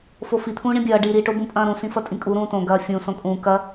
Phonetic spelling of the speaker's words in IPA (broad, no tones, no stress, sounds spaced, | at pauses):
f o f i t̪ʰ ũː ɳ ĩ bʲ ɐː ɖ i ɾ i ʈ o b ũ pʼ ɐ̃ː ɾ ũ s ĩ f ɐ tʼ ĩ kʼ u ɾ ũː t õ ɡ ɐː fʲ ũ s õ kʼ ũː k ɐ